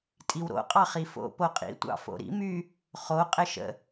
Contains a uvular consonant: yes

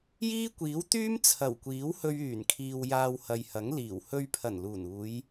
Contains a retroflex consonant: no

